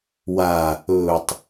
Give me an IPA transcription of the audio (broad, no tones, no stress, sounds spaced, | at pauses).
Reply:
w aː | ɵː tˤ